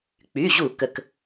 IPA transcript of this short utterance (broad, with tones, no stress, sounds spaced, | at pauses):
k͡p y˩˧˩ ʑ u˧˩˧ k ə˩ k